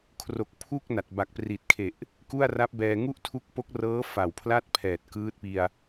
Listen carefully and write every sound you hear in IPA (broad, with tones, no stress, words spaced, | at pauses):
kʰro˨˩k̚pʰu˥˩k̚ na˨˩t̚ba˨˩k̚pri˨˩t̚kʰe˨˩ʔ | ku˥˩a̯ra˦˥p̚bɛː˧ ŋu˥˩ʔtʰu˦˥k̚po˦˥k̚rɤː˦˥ fa˨˩wpʰla˥˩t̚pʰɛː˨˩t̚ kɯː˦˥t̚pi˧a̯